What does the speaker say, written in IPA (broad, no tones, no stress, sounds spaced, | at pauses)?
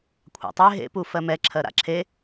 kʷʰ a̰ tˤ e ɦ ḛ p u f ɜ m ɛ ǁʰ ɜ ɾ a̰ ǁʰ e